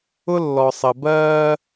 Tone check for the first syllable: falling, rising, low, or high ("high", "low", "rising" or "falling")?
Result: high